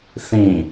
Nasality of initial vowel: nasal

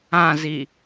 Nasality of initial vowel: nasal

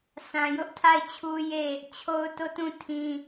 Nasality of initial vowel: nasal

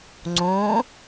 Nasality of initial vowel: nasal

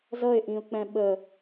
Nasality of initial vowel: oral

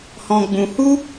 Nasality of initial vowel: nasal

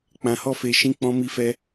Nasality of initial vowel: nasal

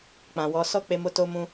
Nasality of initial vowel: nasal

